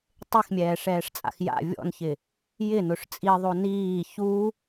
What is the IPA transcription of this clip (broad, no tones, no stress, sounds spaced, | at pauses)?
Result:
tˤ e x mʲ ɛː ʂ ɛː ʂ t͡sʼ a̰ x j a̰ vʲ ɔ̰ n ç ɪ | j ɪ n ʊ ʂ t͡sʼ i ðˤ o n iː ç u